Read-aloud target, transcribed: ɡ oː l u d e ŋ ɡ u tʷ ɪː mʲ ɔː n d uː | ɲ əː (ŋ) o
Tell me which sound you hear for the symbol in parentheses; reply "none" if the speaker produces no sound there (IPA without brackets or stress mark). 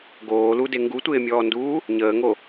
ŋ